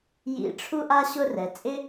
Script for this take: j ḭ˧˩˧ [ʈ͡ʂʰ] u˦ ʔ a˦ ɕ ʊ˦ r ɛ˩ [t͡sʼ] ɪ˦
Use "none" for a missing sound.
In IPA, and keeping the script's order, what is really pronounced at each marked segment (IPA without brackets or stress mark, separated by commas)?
ʈ͡ʂʰ, t͡sʼ